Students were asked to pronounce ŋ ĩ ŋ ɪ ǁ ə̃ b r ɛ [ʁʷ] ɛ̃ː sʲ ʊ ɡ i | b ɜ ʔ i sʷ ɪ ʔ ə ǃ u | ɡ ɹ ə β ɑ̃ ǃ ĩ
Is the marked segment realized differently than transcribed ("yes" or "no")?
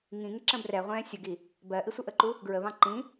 no